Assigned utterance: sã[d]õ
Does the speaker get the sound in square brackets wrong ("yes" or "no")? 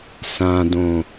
no